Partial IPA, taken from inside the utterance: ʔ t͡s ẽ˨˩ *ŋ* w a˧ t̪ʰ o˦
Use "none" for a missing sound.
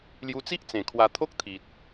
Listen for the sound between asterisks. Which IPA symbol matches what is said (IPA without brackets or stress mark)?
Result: kʰ